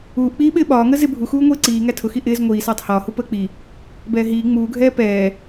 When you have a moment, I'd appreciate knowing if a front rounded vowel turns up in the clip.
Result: no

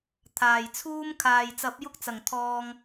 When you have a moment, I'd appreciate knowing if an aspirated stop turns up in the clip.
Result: yes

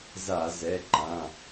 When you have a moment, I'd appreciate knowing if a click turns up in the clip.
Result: yes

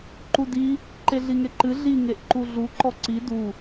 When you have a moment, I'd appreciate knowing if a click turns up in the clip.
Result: yes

